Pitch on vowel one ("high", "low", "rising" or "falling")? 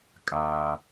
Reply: high